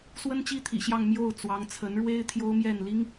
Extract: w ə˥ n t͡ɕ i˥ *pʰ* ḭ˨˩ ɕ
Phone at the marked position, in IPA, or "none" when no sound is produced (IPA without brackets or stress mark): t̪ʰ